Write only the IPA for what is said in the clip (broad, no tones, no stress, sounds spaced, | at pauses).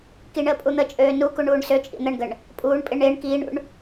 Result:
k i ɳ əː pʼ u n̪ ə t͡ʃʼ øː n u k u ɳ uː ɳ s ø t͡ʃʼ ḭ n̪ ə ɳ ɡ ə ɳ | pʼ uː ɳ pʼ ɪ ɳ ɪː ɳ k iː ɳ ṵ ɳ